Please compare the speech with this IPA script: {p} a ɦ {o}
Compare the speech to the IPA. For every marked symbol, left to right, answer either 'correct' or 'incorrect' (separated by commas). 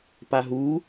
correct, incorrect